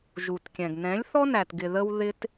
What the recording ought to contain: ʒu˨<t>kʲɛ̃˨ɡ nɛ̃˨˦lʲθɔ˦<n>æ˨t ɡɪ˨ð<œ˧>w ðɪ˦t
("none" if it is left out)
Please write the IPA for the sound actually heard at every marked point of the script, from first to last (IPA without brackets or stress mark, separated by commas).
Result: t, n, ə˧